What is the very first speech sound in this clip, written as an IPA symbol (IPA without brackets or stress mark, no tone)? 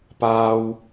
p